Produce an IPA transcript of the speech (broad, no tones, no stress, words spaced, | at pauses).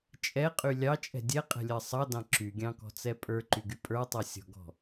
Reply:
t͡ʃʼɛqʼy lʲɑt͡ʃʼɛ̤ dʲɛqʼɛ̤lʲɜ sˤɑdɑ̃ ǁyɡʲɑ̃kɔ̤t͡sɛ pʼə˞ǃyɡy pʼə˞tˤɛsʲɔ̤ɡɔ̤